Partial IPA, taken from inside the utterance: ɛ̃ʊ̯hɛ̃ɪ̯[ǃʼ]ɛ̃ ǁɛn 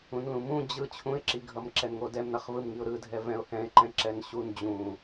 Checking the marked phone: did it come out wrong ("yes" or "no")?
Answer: yes